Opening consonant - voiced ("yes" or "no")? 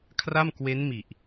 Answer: no